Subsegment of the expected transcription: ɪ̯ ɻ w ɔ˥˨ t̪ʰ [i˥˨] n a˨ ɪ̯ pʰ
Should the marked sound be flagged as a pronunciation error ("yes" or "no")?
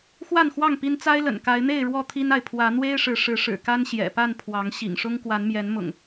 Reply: yes